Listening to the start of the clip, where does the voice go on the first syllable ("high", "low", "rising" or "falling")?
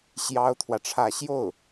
high